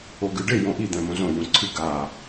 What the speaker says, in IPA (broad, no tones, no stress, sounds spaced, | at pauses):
o ɡ ɨ ɖ e j õ ʔ i d̪ ɛ̃ m õ z õ j ũ ǀʰ ɨ ɡ a